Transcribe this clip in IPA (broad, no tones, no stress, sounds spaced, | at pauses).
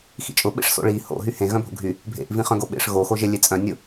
x ḭ t͡ʃʼ ʊ ɓ ḛ ʂ s o̰ ɭ i h o̰ ɦ y h ẽ ɣ œ̃ bʱ o̰ ɡʱ y | bʱ ḛ ʔ v ĩ χ œ̃ ɡ o ɓ ḛ ʂ ɣ o x o ʒ e lʲ e t͡sʼ œ̃ nʲ ʊ